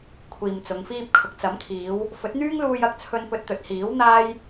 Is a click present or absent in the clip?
absent